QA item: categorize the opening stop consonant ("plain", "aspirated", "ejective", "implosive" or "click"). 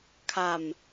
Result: aspirated